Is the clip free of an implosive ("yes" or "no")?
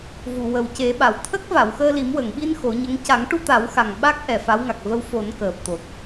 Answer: no